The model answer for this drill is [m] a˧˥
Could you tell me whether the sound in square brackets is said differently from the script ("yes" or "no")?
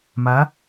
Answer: no